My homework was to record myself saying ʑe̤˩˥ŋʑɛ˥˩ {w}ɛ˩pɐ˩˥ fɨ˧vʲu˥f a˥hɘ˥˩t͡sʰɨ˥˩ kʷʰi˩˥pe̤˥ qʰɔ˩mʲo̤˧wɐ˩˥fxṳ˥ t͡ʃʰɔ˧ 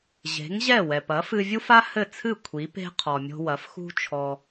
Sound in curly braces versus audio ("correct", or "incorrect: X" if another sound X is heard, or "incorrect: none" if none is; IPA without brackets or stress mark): correct